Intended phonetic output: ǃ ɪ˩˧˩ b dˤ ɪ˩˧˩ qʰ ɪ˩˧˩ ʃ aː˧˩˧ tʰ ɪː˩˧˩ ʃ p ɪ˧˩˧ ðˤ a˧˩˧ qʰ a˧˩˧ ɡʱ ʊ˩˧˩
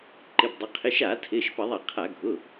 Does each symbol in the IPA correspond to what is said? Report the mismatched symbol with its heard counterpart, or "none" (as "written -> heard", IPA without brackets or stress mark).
none